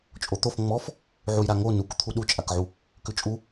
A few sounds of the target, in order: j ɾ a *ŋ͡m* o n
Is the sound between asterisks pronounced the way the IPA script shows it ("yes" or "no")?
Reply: no